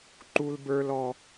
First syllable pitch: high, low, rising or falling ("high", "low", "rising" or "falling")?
high